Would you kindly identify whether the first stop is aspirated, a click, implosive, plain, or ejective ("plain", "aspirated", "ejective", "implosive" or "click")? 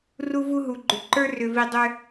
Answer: click